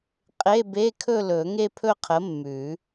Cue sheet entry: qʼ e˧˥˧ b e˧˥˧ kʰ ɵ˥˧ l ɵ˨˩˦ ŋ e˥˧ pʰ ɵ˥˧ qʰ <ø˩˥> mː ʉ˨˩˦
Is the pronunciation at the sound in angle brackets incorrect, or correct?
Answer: incorrect